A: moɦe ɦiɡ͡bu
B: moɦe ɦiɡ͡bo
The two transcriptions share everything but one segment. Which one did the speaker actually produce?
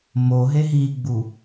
A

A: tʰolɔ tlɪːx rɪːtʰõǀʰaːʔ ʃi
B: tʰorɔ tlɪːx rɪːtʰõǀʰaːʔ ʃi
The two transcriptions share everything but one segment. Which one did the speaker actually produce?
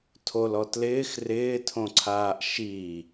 A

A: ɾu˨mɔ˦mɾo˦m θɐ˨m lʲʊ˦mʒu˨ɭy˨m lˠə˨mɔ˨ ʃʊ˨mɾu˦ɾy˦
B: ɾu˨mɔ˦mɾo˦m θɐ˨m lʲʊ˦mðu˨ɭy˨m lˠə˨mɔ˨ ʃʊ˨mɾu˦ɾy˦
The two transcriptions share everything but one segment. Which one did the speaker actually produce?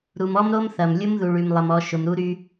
B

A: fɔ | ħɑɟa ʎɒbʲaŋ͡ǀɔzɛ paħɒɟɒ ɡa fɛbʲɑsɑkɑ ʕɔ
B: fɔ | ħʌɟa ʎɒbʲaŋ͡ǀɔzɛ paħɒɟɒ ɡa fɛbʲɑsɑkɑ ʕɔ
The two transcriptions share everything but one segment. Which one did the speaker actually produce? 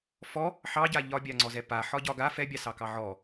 A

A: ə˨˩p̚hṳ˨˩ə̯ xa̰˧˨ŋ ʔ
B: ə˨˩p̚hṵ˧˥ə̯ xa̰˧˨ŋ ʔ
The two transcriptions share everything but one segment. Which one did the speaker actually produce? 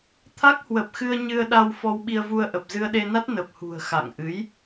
A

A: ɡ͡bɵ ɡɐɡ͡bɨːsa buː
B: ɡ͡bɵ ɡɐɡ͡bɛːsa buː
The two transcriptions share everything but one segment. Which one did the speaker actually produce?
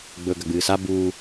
A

